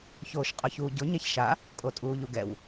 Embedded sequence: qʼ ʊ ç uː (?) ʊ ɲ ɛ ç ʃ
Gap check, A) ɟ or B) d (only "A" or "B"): A